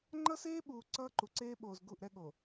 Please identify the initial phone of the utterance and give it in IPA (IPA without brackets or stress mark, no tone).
ŋ͡ǃ